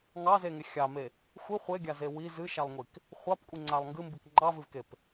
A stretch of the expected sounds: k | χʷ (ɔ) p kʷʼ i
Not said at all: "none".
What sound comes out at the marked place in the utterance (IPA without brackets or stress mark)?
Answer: ɑ